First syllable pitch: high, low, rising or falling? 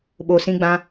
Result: low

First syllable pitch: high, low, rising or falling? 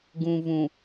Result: low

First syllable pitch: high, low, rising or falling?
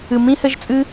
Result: low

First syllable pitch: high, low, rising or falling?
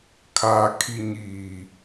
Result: low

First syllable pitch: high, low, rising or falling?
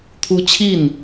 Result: high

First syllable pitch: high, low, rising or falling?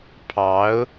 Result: rising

